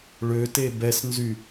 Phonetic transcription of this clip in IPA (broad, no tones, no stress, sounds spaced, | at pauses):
ɭ ø t e b ɛ s n z y